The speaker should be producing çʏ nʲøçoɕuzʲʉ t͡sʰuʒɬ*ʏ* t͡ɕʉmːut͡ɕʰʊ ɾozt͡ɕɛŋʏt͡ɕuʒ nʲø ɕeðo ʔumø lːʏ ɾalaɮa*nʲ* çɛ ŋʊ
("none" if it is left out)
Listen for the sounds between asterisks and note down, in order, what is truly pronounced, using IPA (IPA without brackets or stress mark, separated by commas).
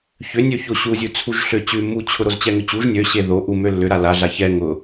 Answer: ʏ, none